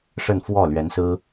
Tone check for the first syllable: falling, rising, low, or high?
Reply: falling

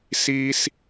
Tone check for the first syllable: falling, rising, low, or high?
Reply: high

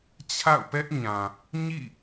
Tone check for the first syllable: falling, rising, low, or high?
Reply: falling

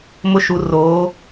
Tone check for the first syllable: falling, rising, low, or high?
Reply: high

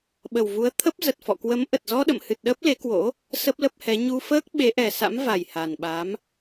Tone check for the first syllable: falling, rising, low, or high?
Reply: low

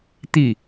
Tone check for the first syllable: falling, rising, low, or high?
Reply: falling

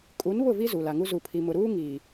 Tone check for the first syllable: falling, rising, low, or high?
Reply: rising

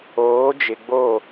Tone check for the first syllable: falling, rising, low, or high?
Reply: rising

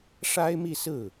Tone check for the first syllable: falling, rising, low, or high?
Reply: high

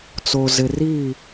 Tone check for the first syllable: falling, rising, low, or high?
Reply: low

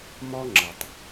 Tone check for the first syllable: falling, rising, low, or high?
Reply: high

